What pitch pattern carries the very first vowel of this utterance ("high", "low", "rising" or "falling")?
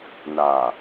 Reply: low